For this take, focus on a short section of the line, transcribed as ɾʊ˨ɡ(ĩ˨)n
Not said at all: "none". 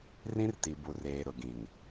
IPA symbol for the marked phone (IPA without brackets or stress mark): ĩ˨